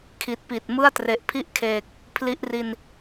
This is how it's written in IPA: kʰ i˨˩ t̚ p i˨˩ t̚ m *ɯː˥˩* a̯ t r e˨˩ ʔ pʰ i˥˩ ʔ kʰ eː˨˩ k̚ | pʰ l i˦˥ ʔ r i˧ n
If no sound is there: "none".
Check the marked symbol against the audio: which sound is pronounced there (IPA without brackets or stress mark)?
ɯ˥˩